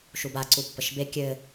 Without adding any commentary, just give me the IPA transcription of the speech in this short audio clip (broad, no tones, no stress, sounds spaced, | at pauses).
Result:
ʃ u b a ǀ u pː ə ʃ b e kʲ ɘ